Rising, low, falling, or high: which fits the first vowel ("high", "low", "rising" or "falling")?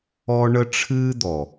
high